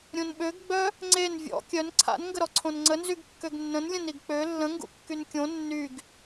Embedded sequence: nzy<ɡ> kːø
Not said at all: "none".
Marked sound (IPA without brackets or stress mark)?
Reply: ɡ